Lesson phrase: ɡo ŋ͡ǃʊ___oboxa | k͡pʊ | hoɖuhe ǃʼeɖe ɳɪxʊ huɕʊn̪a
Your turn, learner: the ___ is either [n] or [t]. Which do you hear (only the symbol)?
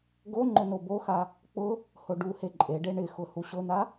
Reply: n